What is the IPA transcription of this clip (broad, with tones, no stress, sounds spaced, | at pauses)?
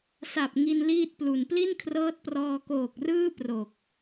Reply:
s a˨˩ p̚ ŋ i˧ n l iː˥˩ t̚ p l u˨˩ n p l i˥˩ n kʰ r ɤː˦˥ t̚ p r ɔː˧ k oː˨˩ k̚ r ɯː˥˩ p r o˨˩ k̚